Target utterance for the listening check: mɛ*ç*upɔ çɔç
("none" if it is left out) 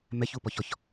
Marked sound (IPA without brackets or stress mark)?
ç